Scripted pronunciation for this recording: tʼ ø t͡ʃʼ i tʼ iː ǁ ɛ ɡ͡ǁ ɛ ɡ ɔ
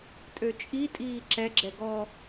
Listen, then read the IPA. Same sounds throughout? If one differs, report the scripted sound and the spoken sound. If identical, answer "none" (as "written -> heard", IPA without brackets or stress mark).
none